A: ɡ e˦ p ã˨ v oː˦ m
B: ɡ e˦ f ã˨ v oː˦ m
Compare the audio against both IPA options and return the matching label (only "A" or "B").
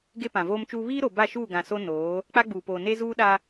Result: A